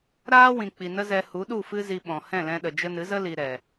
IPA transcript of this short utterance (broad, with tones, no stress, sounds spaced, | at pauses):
ɾ aː˦ w ĩ˨ k͡p i˨ n ə˦ z ɛ˧ h u˨˦ ɗ u˦˨ f ɨ˦ z i˧ ɓ ɔ̃˨ h ɛ̃˦˨ l ɛ̃˧ ɗ ə˨ d͡ʒ ə˧ n ɨ˨˦ z ə˦ l i˨ ɾ ɛ˨